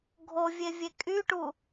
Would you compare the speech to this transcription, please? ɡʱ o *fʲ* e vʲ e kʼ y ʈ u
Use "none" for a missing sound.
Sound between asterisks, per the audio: vʲ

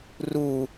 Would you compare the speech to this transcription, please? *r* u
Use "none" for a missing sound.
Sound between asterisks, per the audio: r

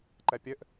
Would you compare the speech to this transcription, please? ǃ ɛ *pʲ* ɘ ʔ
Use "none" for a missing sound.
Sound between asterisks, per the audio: pʲ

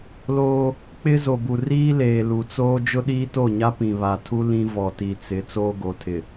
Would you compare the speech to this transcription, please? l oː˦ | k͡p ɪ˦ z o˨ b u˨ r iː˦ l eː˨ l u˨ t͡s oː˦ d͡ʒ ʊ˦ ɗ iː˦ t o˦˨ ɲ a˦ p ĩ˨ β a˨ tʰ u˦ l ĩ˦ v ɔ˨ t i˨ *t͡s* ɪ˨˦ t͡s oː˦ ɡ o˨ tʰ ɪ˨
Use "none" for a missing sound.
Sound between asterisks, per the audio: t͡s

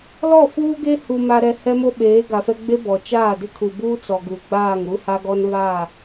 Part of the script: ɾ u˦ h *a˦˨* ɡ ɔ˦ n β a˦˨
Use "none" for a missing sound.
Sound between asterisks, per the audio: a˦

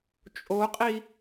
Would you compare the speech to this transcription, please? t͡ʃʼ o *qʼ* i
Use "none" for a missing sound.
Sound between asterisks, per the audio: qʼ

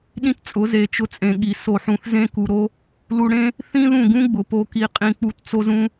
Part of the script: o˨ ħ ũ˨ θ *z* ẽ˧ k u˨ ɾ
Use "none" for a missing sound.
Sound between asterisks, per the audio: z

